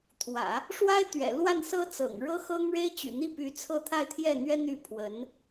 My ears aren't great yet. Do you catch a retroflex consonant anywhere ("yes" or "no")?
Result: yes